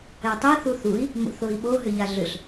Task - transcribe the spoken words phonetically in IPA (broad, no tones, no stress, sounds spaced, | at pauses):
ɛ tˤ e θ u θ u i̯ | m o̰ θ o i̯ ɓ o ɦ ʏ ʎ a ɮ ʏ ɬ